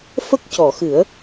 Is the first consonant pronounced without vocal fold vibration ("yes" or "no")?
yes